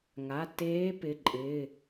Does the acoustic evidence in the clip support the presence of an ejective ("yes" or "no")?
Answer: yes